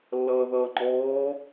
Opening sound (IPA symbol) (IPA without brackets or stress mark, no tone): lː